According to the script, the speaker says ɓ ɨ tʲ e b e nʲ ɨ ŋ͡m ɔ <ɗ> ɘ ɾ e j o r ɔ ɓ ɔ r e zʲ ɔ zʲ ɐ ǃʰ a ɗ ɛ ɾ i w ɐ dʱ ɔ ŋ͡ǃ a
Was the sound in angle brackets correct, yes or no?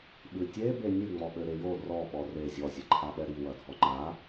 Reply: no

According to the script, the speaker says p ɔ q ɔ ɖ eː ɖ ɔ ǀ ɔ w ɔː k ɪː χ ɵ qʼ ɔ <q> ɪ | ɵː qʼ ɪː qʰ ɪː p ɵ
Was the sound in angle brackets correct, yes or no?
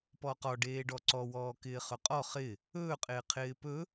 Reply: no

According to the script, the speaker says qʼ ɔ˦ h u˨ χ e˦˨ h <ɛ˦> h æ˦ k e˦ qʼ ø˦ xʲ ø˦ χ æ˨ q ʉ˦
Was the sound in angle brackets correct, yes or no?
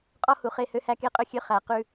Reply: no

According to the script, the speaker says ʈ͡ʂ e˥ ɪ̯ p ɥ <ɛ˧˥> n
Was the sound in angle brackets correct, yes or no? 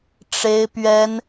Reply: no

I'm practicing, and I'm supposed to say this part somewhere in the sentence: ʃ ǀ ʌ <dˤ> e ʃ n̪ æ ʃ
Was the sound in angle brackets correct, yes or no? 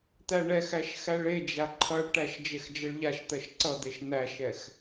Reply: no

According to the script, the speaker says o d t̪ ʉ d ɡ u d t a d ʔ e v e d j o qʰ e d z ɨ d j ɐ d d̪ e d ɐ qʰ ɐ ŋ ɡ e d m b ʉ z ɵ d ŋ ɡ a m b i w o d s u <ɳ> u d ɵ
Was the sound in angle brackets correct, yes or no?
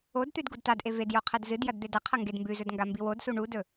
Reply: yes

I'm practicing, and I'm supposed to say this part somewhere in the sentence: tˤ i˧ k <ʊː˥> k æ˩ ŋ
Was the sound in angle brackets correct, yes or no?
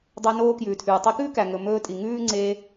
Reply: no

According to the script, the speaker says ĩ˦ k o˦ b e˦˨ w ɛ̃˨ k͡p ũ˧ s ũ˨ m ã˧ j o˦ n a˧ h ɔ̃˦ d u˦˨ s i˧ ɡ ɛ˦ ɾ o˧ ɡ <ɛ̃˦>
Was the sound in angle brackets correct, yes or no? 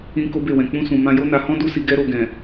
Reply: no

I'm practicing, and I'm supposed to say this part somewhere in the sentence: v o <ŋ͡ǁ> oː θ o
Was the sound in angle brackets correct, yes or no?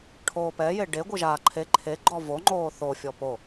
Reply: no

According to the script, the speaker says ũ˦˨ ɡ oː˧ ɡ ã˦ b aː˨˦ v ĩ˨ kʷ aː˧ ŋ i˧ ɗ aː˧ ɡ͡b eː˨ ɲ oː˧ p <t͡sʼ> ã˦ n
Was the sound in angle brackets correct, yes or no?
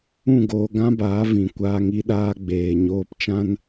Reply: no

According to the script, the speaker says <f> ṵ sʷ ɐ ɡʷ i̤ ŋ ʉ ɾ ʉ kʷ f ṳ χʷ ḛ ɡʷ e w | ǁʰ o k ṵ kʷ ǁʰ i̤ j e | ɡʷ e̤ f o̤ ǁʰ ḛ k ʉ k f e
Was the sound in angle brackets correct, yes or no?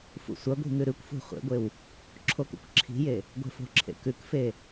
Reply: yes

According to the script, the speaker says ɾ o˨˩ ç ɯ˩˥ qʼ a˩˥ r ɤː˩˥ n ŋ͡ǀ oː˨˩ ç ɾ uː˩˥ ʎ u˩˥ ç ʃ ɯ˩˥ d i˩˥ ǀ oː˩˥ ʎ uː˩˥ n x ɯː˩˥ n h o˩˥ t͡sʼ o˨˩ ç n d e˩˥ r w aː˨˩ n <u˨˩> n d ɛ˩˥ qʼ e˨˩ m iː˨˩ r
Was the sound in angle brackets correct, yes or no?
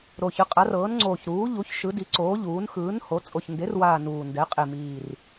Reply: no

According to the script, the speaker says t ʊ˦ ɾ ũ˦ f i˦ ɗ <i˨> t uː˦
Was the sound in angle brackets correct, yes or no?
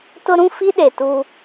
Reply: no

